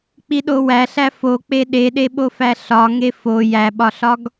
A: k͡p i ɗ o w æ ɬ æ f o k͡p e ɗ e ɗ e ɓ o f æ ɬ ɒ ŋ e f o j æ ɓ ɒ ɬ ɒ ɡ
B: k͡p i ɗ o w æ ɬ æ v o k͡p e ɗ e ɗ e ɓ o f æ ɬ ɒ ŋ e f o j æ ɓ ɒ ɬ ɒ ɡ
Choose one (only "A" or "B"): A